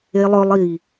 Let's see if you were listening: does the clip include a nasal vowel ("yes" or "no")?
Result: no